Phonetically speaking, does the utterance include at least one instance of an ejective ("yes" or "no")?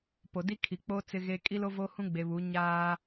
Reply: yes